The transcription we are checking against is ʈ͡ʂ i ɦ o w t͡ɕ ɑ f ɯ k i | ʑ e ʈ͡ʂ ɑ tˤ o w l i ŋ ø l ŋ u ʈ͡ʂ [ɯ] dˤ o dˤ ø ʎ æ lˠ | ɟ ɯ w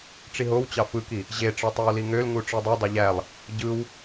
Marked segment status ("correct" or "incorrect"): correct